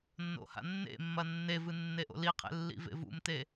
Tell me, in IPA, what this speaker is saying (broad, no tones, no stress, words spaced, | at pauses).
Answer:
nːo̰ha̰nːḛmːɐ nːevɨ nːeʔo̰liqʰḛ lːḭvḛvṵmte